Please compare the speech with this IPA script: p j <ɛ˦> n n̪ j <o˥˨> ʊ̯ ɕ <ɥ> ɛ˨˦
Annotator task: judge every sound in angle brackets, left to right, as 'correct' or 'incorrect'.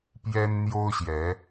correct, incorrect: o˦, incorrect: j

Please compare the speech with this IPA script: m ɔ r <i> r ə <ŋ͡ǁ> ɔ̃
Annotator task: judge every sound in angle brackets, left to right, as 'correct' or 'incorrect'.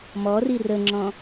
correct, correct

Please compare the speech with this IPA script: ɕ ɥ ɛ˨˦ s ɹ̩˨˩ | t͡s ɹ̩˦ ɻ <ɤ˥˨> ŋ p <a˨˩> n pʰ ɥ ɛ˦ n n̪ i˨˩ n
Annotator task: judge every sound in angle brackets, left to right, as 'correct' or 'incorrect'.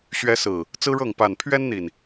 correct, correct

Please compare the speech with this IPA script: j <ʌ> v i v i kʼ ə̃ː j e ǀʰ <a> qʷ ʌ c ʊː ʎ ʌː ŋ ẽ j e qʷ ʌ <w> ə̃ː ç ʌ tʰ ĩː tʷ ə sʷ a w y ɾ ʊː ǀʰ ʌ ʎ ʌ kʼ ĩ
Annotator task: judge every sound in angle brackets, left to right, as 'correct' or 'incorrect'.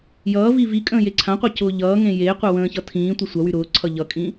incorrect: ʌː, incorrect: ã, correct

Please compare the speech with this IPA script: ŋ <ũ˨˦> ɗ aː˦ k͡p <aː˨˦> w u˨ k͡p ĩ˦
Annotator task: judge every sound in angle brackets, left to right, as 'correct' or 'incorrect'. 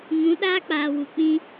correct, incorrect: aː˨

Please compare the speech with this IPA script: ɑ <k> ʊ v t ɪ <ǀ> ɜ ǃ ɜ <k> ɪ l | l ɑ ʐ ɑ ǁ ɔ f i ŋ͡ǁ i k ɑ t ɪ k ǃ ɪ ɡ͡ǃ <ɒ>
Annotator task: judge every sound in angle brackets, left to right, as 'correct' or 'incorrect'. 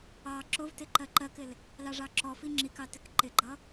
incorrect: ǁ, incorrect: ǃ, correct, incorrect: ʌ

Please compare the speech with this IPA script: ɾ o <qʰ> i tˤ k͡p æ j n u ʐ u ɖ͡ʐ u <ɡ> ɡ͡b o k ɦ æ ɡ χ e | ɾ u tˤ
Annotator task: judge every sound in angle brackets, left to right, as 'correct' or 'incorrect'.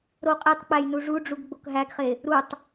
incorrect: qʼ, correct

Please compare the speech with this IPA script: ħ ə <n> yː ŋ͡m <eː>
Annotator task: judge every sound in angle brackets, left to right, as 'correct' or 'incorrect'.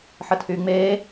incorrect: tʰ, correct

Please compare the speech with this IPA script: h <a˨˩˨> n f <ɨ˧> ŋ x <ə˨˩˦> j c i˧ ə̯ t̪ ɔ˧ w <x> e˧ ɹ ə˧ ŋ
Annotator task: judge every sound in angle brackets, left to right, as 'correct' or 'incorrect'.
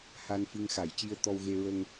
incorrect: a˧, correct, incorrect: a˨˩˦, incorrect: ɣ

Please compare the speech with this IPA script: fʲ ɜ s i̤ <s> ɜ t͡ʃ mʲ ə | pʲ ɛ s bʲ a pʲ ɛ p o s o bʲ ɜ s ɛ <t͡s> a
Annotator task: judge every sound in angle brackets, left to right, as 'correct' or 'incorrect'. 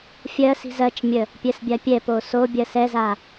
incorrect: z, incorrect: z

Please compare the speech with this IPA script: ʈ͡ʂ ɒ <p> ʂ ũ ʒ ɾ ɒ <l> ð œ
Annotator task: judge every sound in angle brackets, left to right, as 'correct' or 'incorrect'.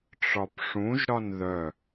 correct, incorrect: n

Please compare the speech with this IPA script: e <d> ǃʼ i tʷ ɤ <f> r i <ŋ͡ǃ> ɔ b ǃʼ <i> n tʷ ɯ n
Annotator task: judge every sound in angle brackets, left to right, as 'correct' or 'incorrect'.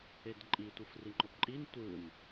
correct, correct, correct, correct

